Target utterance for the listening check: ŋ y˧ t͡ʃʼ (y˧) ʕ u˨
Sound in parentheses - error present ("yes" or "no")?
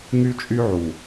no